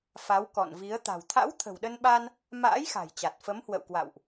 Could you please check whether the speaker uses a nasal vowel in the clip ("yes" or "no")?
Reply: no